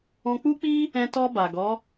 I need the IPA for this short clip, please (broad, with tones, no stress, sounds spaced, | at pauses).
ɔ̃˧ k͡p u˦ k͡p i˦ | ɛ̃˧ t ɔ˧ b a˨ ɡ ɔ˨˦